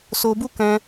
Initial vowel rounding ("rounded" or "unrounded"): rounded